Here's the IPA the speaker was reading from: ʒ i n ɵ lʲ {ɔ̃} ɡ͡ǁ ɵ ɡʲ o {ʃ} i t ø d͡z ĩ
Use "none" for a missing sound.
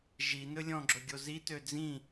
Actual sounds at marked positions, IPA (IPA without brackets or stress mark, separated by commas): ɔ̃, z